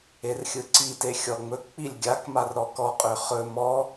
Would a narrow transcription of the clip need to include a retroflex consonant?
no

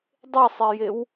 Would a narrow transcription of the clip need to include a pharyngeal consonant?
no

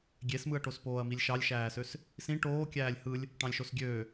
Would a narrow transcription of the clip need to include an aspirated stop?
no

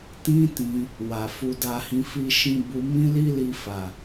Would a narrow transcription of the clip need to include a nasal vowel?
yes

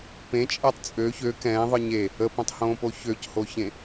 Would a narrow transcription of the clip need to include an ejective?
yes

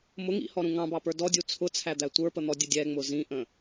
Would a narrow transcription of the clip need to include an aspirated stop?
yes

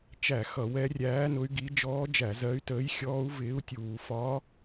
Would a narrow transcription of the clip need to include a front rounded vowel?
yes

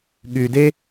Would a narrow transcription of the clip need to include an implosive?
yes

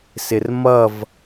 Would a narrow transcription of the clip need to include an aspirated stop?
no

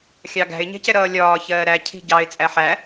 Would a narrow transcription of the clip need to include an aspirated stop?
yes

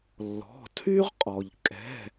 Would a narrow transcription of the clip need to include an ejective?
yes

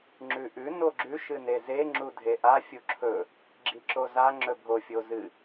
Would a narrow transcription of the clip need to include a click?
yes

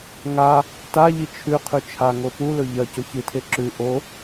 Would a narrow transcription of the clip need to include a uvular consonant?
yes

